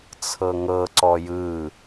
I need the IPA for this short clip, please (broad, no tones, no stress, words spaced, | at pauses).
t͡sʰɤŋɤǀɔ jɯ